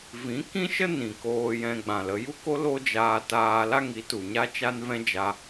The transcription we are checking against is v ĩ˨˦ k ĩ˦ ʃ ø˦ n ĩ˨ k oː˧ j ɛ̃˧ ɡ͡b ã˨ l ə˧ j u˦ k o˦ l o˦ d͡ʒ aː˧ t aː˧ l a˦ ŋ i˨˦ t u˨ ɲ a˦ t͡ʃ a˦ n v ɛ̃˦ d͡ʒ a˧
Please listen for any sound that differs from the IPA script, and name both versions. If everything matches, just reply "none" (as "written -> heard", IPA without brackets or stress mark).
ø˦ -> ə˦